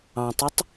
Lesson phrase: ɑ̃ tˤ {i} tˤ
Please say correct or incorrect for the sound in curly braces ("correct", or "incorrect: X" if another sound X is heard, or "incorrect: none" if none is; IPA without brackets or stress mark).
correct